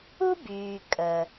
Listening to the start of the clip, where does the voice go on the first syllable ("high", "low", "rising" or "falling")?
high